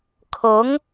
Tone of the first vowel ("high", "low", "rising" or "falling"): rising